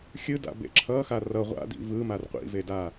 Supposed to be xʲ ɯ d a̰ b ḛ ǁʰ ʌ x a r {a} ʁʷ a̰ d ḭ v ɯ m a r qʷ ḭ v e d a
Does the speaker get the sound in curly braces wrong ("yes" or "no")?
yes